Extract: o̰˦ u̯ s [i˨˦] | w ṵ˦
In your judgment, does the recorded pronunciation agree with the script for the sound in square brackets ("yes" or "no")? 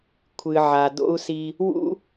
no